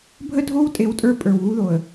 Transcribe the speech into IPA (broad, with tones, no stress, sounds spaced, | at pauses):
bʱ ə˦ dʱ o˦ w tʼ e˦ w tʼ ə˞˦ pʼ ə˞˨ w ɣ u˦ ð o˨ ə̯